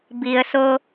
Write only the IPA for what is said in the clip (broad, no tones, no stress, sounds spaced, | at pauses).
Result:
b i ə̯ s o